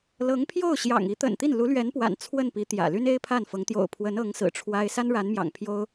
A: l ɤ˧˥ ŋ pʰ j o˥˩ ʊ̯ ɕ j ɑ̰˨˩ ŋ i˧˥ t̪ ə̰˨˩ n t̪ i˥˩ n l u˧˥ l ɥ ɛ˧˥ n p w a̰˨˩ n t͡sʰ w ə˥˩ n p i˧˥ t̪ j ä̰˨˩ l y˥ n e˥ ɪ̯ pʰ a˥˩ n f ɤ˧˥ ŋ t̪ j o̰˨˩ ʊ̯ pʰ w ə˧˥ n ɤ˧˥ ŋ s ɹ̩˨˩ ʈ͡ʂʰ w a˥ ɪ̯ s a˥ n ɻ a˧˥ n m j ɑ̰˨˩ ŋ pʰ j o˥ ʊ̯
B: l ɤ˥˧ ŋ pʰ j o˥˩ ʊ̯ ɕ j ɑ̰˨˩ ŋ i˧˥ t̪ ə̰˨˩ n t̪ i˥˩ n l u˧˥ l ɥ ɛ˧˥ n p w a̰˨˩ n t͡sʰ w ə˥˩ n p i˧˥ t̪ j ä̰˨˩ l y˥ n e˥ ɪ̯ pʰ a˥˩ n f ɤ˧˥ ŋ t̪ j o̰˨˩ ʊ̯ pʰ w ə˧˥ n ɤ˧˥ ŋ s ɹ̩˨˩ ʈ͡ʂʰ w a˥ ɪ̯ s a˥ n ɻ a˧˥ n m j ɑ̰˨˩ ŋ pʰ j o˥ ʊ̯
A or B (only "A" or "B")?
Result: A